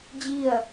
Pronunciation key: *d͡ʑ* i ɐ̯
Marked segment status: correct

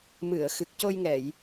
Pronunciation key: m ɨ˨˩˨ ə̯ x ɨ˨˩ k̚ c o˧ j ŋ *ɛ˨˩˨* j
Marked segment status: correct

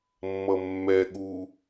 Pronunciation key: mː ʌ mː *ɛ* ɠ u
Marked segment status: correct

